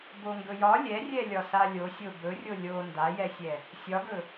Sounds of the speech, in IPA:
b o ŋ ɡ ɵ j ɒ lʲ ɛ rʲ ɛ lʲ ɒ s a lʲ o sʲ o b ɵ rʲ o lʲ o n d a j ɛ sʲ ɛ | sʲ ɒ ɡ ɵ

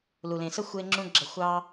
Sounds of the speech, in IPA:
l u˩ l ẽ˩ s ə˥ xʷ e˧ ŋ͡ǁ ũ˧ ɡ͡ǁ ʌ˧ xʷ ɑ˥

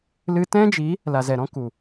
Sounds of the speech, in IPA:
l ɨ˧ t ɛ̃˦ d͡ʒ i˨˦ | l a˨ z ɛ˨ ɾ ɔ̃˦ k u˨

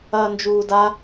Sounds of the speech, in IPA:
ɐː n d͡ʒ uː d a

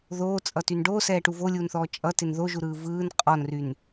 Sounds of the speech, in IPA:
ð oː t͡sʼ ʌ t y n ɖ oː s ɛː ʈ u v o lʲ uː n θ ɔː t͡ʃʼ ʌ t ɪ n ð o ʒ u ɾ ɯː v ɯː n qʼ ɔ n r y n

